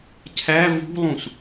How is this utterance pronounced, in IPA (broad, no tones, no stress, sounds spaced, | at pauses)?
cʰ æ v ṳ lˠ ũ s